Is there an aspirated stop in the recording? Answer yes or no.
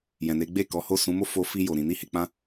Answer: no